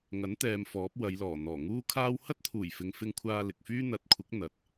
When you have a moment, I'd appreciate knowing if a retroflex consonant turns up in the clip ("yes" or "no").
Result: no